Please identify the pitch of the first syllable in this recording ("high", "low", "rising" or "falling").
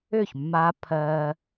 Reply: falling